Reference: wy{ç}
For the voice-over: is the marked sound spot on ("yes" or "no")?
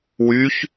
yes